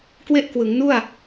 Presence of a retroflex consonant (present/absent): absent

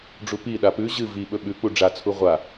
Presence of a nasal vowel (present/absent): absent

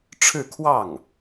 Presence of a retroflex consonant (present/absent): present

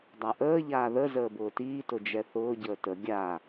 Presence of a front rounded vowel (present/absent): absent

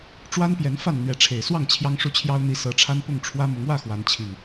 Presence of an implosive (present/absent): absent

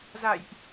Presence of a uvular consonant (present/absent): absent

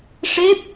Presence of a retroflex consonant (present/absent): present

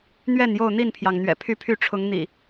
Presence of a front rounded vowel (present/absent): present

